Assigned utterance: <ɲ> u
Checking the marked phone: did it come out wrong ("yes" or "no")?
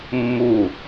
yes